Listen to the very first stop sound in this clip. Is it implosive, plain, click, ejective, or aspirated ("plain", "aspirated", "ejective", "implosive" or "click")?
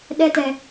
implosive